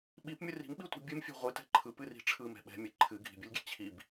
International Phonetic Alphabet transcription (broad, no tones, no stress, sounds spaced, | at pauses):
ɓ i p mʲ ɯ r i̤ m ɓ i tʷ i̤ bʲ ɨ m fʲ ɛ̤ ʁʷ ɨ t ɛ̤ ǃʰ ɯ p ɨ r i̤ ʈ͡ʂʰ ɯ m ɛ̤ ɓ ɛ̤ mʲ ɨ ǃʰ ɨ ɡʱ i̤ bʲ ɨ lʲ ɡʲ ɛ̤ t͡ɕʰ i b